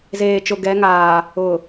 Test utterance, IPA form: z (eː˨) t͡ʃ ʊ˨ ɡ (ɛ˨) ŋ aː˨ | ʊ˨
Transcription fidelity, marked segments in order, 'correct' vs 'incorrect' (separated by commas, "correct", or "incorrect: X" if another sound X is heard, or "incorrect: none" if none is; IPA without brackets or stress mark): correct, incorrect: ɛ˨˦